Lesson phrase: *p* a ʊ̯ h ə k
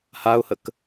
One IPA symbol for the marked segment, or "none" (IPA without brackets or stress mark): h